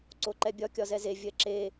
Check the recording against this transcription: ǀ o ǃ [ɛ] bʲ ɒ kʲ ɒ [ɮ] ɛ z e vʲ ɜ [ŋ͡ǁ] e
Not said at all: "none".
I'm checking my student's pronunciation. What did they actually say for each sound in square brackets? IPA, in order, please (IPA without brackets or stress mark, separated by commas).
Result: ɛ, z, ǁ